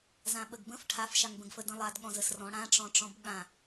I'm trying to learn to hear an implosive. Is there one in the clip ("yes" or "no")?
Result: yes